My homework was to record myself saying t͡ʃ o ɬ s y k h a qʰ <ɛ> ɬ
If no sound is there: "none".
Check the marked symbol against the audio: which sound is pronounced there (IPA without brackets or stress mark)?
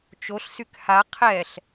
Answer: ɛ